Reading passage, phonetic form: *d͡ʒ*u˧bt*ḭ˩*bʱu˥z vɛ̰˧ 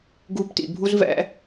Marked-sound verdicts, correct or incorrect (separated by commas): incorrect, correct